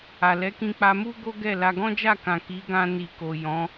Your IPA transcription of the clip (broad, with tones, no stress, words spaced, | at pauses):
a˨lɛ˨˦kĩ˧k͡pa˧ mu˦ ɡo˦ɡɛ˦˨la˧ ɡɔ̃˦d͡ʒa˦˨kã˨ ki˨˦ɡã˧ ni˨ ko˨ jɔ̃˨˦